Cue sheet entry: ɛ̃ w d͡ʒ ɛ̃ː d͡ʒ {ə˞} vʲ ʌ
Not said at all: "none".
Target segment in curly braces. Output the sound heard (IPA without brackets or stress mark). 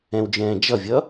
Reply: ʌ